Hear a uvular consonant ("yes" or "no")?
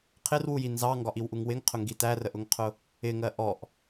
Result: yes